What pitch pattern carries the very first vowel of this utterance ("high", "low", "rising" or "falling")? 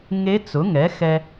rising